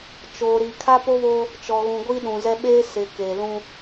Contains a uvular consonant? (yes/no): no